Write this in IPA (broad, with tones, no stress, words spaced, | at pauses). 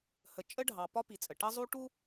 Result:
hə˨t͡ʃʼə˦ɖʱɑ˨ pɒ˦pi˨t͡sʼə˨ ʈʌ˦zˤu˦ʈu˦